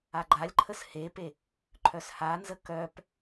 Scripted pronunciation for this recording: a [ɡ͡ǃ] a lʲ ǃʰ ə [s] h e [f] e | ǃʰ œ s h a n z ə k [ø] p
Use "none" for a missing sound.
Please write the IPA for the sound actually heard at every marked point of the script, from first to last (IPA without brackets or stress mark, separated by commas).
ɡ͡ǃ, s, p, œ